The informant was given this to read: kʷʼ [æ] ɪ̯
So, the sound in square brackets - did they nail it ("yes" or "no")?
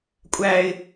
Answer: yes